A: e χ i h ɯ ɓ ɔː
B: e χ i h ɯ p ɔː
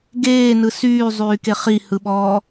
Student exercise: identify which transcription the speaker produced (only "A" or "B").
A